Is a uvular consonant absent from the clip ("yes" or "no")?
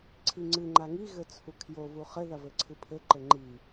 no